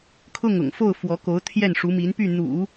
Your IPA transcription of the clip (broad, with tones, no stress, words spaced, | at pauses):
kʰʊ˥˩ŋʊ̰˨˩ŋfo˥˩ʊ̯ fwɔ˧˥ko˧˥ʊ̯ t̪ʰjɛ˥˩nʂu˧˥mi˧˥n py˥˩n̪ṵ˨˩˦